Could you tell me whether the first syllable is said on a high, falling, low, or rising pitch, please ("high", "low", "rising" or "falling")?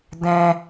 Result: high